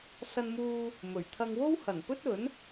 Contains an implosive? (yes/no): no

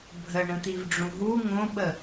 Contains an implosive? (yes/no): yes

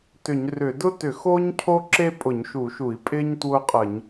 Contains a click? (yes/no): yes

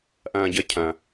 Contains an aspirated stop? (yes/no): yes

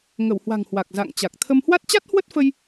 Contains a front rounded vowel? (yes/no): no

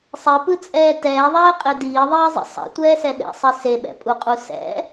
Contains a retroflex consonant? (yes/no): no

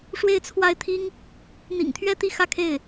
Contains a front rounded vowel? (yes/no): no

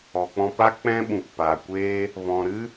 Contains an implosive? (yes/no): yes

